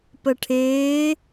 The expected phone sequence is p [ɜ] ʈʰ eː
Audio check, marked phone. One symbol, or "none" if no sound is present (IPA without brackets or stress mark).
ɜ